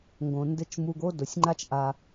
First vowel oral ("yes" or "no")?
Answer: no